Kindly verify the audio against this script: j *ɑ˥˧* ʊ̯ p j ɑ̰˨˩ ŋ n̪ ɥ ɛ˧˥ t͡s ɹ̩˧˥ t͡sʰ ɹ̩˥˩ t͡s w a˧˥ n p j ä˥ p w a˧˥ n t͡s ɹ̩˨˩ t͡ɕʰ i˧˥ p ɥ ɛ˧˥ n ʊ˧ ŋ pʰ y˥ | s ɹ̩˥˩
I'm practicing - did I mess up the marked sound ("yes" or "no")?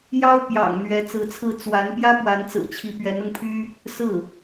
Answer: yes